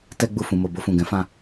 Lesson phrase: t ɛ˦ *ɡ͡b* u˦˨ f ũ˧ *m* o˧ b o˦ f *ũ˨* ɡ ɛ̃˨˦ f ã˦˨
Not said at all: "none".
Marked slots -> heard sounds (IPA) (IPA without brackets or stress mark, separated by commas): ɡ͡b, m, ũ˦˨